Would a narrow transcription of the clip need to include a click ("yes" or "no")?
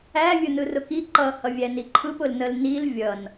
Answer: yes